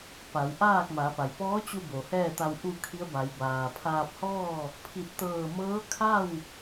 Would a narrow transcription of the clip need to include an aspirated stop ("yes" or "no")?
yes